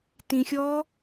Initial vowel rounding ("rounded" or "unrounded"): unrounded